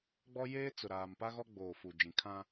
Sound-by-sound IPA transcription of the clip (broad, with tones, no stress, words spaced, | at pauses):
ɡ͡bɔ˦ jeː˦t͡sʊ˨ɾaː˨m pa˦ɣɔ˦ ɡ͡boː˨fu˨ d͡ʒĩ˨kʰã˦